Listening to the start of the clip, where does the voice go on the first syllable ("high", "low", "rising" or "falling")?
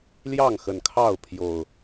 falling